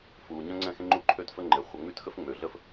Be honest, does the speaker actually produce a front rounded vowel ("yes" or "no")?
yes